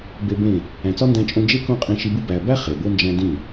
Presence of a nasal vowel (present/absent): present